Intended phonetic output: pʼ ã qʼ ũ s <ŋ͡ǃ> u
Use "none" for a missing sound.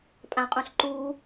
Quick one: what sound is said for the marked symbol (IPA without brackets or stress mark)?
ǃ